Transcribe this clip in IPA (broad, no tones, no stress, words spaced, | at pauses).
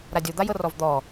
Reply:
ɾadʲo d̪ajɤrɔvd̪ɔ